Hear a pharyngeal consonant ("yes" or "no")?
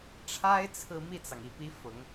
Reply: no